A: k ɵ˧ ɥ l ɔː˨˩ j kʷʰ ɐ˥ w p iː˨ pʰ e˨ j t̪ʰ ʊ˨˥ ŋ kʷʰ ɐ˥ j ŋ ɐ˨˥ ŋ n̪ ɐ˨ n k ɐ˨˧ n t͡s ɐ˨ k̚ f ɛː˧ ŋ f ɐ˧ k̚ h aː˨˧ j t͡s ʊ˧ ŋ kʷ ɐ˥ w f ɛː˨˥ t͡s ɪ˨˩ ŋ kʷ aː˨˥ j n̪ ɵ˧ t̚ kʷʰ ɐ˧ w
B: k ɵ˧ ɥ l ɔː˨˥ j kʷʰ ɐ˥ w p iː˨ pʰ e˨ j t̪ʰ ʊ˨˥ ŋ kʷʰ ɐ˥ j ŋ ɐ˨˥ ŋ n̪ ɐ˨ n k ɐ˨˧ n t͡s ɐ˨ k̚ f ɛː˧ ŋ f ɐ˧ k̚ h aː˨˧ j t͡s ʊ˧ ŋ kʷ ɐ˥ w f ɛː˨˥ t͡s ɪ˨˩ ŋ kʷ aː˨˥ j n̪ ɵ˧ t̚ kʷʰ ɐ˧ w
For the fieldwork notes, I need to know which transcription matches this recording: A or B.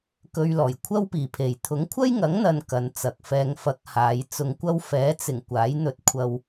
A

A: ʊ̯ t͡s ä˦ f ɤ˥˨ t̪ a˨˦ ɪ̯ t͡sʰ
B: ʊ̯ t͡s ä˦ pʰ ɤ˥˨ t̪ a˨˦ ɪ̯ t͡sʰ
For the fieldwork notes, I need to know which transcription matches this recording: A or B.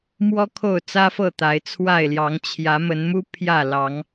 A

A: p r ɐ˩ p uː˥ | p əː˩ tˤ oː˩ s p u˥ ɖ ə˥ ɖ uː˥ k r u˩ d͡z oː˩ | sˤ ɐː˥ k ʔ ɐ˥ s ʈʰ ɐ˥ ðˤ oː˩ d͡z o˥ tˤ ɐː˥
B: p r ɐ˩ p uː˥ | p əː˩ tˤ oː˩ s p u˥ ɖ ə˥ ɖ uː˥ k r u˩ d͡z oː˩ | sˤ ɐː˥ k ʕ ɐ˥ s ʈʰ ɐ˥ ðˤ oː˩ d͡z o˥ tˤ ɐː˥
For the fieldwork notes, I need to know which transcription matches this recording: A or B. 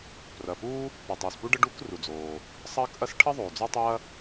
A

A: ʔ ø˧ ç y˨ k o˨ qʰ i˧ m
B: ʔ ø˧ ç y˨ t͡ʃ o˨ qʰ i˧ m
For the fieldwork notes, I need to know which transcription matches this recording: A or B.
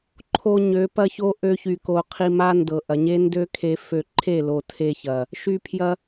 A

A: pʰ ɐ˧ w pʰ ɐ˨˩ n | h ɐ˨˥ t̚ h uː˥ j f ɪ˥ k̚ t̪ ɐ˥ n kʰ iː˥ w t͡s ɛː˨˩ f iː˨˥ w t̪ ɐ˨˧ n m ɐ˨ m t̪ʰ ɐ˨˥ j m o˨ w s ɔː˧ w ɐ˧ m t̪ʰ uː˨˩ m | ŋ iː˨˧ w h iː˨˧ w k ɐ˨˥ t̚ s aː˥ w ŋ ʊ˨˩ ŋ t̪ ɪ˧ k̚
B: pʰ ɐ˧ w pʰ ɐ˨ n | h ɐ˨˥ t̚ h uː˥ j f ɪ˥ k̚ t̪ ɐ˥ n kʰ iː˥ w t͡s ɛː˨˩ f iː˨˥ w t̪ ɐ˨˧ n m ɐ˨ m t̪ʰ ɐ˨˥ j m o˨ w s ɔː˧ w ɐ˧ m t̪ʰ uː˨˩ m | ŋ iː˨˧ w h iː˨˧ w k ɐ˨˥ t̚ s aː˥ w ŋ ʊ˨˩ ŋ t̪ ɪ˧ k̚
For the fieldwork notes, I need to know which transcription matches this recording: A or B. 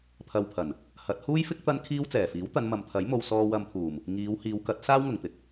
A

